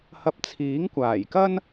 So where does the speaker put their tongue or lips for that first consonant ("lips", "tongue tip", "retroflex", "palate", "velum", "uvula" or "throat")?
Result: throat